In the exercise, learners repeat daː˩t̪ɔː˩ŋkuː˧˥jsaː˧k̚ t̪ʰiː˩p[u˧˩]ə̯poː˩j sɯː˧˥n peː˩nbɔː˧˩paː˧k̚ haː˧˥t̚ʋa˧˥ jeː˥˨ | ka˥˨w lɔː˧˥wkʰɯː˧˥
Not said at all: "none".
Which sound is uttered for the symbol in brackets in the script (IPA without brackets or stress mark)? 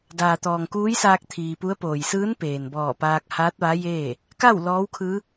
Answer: u˧˥